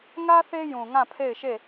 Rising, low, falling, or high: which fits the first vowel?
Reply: high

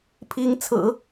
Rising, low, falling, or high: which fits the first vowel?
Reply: rising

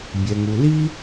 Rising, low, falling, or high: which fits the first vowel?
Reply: low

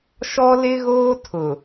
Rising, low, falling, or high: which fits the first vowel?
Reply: high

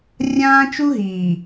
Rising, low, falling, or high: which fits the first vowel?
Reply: high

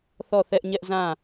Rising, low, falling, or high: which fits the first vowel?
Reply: falling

